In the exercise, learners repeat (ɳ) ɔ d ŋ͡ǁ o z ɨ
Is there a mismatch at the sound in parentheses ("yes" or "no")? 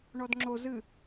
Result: no